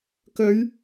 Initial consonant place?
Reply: velar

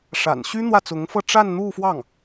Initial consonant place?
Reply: retroflex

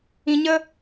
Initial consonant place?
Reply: palatal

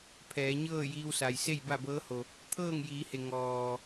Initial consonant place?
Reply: labial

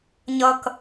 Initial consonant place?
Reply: palatal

